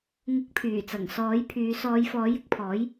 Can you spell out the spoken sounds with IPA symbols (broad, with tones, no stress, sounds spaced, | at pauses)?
ŋ ʊ˨˥ k̚ pʰ yː˨˩ t͡s ɐ˨˩ ŋ s ɔː˨˥ j pʰ yː˨˧ s ɔː˨˧ j f ɔː˨˥ j ɪ˧ k̚ pʰ ɔː˨˥ j